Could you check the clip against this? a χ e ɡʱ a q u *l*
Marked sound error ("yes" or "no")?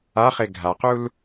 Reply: no